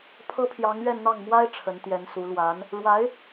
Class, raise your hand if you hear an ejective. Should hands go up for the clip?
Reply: no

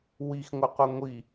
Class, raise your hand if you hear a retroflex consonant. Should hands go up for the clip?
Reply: no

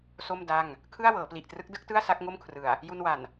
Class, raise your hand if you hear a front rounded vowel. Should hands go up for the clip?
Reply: no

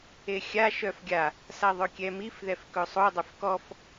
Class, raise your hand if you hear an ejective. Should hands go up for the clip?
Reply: no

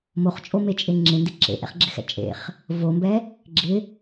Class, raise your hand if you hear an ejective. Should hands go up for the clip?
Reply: yes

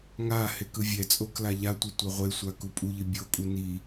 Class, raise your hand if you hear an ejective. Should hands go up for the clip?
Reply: yes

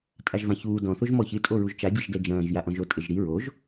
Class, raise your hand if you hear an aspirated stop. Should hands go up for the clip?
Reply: no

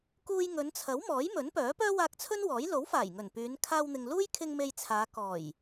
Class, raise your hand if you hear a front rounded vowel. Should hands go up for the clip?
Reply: yes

